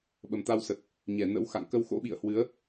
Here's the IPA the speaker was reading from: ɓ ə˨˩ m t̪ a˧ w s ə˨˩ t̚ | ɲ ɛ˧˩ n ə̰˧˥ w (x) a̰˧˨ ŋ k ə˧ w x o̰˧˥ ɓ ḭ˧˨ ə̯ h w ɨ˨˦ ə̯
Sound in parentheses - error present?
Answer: no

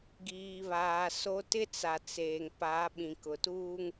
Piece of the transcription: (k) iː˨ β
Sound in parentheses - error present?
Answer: yes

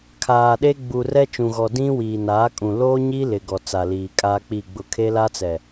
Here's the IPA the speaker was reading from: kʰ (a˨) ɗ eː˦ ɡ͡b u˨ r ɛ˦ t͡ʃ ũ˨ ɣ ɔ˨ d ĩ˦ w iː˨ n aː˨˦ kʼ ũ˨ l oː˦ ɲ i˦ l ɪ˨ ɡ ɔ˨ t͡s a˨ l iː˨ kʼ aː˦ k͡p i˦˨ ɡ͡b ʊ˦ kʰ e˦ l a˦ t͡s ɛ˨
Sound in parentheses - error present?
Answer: yes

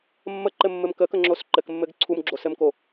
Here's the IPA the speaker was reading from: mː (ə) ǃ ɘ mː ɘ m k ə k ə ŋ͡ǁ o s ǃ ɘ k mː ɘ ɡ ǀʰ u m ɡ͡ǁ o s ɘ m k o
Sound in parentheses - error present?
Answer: no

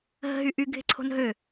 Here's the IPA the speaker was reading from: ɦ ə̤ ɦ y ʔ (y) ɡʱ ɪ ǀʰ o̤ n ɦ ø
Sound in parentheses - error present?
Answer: no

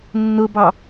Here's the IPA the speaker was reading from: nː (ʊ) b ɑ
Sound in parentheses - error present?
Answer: no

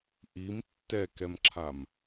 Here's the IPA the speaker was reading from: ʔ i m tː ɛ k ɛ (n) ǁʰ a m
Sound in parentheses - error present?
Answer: yes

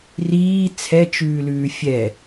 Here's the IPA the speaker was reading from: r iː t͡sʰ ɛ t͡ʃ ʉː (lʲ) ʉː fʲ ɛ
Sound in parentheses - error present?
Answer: yes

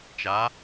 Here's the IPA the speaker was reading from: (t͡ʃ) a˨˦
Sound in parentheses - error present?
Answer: no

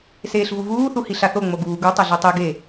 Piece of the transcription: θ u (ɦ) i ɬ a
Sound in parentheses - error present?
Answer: yes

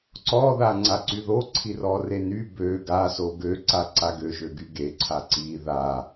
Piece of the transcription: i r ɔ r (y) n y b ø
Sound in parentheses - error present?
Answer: yes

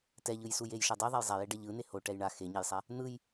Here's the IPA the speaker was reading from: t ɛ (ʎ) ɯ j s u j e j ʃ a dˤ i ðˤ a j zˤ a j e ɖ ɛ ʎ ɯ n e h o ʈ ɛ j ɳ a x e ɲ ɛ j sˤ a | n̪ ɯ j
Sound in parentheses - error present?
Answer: no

